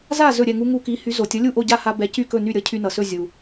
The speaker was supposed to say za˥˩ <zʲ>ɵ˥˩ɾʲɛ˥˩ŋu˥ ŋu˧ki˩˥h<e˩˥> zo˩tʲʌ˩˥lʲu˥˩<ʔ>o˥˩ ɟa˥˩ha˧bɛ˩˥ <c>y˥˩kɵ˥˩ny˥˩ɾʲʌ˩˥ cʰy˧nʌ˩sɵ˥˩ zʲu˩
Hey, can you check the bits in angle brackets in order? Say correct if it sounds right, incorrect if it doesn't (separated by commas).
incorrect, incorrect, correct, correct